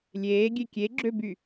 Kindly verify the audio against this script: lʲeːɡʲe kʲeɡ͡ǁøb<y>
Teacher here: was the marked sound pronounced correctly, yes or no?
yes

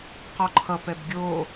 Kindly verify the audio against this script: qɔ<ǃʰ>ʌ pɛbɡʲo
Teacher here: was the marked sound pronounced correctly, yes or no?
yes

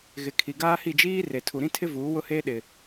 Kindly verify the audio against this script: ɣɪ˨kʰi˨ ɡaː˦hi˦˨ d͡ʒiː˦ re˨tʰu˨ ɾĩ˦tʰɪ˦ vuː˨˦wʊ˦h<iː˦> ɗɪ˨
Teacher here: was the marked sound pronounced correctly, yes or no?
no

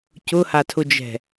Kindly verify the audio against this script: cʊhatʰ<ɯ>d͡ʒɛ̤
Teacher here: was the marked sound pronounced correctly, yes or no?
no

